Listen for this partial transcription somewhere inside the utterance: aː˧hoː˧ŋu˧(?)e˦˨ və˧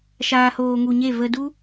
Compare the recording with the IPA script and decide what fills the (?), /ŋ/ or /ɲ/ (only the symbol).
ɲ